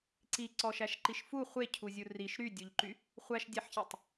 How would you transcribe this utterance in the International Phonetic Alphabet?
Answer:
ǀ i ǀ ɔ ʃ æ ʃ ǃ i ʃ f u χʷ e cʰ u zʲ u r i ʃ ɾ y dʲ u ʎ ǃ y | χʷ æ ʃ dʲ æ ħ ç e tˤ

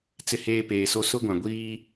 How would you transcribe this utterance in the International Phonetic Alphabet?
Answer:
t͡s ɪ˦ h eː˦ p eː˨ s o˦ s ʊ˦ ɡʷ ã˨ ɡʷ iː˦

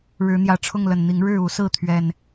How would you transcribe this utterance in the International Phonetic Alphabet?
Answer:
ɻ ɻ̩˨˦ n̪ j ä˨˩ ʈ͡ʂʰ ʊ˥˨ ŋ l ə˨˩ n n̪ i˨˦ ŋ ɻ ɻ̩˥˨ u˨˦ s ɹ̩˥˨ t̪ʰ ɥ ɛ˨˩ n

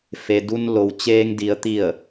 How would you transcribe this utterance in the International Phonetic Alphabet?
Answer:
f e˩ d u˧ n l o˩ w t͡ɕ eː˧ ŋ d i˩˧ ə̯ t̪ i˧˩ ə̯

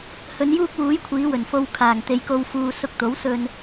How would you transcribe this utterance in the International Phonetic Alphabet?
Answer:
h ɵ˨˧ n j uː˥ k̚ w uː˨˥ j kʷʰ iː˨˧ w ɵ˨˩ n f o˧ w kʰ aː˨˩ ŋ t̪ e˨ j k o˧ w f uː˧ s ʊ˧ k̚ t̪ o˨˥ w s ɵ˧ n

